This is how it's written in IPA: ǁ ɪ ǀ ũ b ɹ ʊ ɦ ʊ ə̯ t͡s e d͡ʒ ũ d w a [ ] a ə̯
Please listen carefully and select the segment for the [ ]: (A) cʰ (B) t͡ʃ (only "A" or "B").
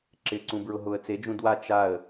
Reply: B